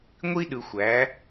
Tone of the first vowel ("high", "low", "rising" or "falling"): high